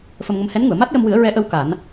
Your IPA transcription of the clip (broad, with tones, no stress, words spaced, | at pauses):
fə˧mŋə˧m hɛ˧˥nŋu˨˩˨ə̯ ma˦˥t̚jə˧mwɨ˨˩˦ə̯ ɹɛ˧˥ʔə˧˥w ka˨˩˦n